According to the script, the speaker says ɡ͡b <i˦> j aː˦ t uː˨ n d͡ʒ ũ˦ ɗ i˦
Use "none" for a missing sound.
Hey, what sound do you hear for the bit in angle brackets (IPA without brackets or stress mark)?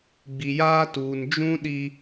i˨